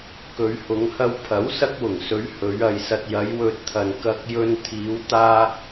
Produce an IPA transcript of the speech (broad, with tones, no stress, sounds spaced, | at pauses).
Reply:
k ɵ˨˧ ɥ h ʊ˨˧ ŋ h ɐ˧ w pʰ ɐ˨˥ w s ɐ˧ k̚ w ʊ˨˩ ŋ s ɵ˨˧ ɥ h ɵ˨˧ ɥ ɐ˨ j s ɐ˨ t̚ j ɐ˨˧ j w ɵ˨ t̚ t̪ʰ ɐ˨ n k ɐ˧ k̚ j ɵ˧ n t̪ʰ iː˨˧ w t̪ aː˧